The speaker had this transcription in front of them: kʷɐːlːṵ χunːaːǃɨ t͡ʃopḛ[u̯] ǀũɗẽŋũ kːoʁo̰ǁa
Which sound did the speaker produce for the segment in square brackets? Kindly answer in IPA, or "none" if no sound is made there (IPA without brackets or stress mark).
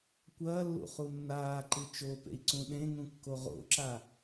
i̯